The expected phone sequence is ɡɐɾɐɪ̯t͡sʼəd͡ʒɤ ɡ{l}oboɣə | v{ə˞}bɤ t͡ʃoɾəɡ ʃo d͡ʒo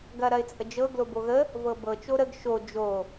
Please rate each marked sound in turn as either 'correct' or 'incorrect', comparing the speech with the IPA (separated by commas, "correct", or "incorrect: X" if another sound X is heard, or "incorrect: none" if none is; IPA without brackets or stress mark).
correct, incorrect: ɤ